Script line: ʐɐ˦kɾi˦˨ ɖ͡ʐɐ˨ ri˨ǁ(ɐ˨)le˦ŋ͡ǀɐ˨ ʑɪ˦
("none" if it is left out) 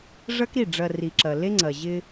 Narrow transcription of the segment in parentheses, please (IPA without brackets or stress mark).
ɐ˨